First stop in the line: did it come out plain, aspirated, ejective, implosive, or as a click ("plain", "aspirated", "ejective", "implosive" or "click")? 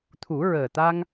aspirated